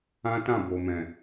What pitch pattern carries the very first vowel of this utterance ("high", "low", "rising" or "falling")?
high